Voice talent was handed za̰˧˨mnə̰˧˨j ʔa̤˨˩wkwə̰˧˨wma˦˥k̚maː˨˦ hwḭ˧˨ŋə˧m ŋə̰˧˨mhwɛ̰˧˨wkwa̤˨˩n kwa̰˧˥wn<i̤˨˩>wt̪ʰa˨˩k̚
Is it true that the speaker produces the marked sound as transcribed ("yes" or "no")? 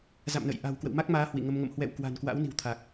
yes